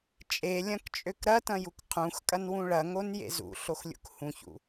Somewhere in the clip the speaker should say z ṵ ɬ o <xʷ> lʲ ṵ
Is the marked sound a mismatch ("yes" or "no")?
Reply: yes